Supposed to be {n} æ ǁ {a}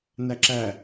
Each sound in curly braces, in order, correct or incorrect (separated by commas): correct, incorrect